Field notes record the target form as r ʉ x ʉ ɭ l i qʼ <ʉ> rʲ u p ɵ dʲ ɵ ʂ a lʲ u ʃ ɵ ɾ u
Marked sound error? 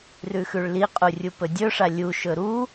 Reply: yes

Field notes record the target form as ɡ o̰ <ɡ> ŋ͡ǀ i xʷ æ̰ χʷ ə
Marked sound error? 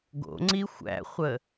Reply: yes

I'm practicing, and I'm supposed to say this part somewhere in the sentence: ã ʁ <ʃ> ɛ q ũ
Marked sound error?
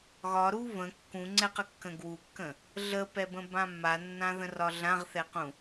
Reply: yes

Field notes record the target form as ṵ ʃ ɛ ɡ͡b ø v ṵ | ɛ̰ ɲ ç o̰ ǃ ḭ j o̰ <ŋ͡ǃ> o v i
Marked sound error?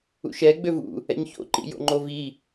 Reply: no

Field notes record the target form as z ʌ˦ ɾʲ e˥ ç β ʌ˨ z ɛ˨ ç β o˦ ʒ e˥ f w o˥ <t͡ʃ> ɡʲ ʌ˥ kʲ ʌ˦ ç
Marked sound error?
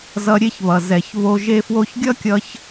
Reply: yes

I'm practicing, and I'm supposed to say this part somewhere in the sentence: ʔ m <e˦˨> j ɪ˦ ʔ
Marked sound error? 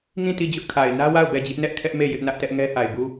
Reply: no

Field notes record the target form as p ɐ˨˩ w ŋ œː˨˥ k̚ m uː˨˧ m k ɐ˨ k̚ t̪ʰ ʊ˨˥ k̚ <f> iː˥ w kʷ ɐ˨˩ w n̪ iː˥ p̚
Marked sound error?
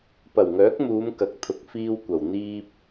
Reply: no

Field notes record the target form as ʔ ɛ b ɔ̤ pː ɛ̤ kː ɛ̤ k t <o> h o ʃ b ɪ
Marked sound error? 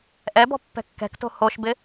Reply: yes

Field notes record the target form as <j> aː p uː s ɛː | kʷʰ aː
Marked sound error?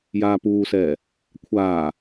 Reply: no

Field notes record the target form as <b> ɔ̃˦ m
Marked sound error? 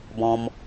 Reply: no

